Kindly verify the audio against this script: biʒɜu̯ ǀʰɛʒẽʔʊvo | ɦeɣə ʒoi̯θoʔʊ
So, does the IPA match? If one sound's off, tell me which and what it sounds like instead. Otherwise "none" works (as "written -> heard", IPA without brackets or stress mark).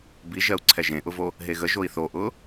none